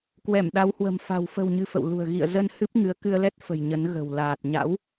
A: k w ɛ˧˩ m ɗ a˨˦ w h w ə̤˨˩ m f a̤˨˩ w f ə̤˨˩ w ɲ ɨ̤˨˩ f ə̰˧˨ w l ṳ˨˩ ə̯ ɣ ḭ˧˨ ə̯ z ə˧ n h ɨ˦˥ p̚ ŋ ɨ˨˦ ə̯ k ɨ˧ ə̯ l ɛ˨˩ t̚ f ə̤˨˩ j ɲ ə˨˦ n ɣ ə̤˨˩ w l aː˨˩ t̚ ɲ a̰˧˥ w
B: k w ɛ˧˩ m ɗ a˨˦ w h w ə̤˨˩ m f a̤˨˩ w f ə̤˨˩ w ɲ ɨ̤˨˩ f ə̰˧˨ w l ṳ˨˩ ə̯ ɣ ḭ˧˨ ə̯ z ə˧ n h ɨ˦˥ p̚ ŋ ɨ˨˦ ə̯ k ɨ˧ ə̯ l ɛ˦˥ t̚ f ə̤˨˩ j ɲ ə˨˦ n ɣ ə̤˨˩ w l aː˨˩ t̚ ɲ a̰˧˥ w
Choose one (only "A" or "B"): B